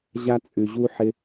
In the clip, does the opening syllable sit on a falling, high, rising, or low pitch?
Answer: high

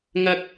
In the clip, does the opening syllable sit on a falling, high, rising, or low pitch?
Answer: high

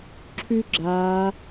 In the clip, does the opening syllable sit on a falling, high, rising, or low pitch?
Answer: high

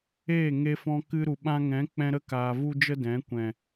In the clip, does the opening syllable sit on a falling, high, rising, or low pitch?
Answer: falling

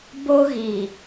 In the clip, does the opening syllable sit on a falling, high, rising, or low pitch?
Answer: high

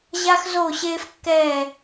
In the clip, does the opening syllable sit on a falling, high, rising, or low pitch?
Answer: high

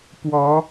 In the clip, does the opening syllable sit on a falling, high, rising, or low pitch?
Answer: rising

